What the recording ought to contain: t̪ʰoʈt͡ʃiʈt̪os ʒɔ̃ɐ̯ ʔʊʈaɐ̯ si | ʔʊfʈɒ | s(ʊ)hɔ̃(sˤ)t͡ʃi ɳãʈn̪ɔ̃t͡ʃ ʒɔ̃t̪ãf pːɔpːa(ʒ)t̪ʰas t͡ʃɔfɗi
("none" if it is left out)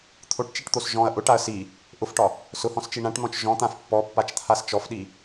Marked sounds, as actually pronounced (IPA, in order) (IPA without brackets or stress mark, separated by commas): ʊ, s, t͡ʃ